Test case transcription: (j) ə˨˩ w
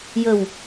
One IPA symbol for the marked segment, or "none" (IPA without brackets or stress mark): j